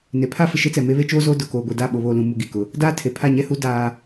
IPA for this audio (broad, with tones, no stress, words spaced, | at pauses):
ne˨pʰa˦ fɪ˨ʃe˦t͡sɛ˨me˦ βe˦ t͡ʃoː˦zoː˦ dʊ˨koː˨ɡʷe˨ da˦˨ ɓo˨βoː˨lũ˨mu˨ ɡi˨kʊ˦ | daː˦tʰe˨pʰa˦˨ ɲɛ˦hu˦ daː˦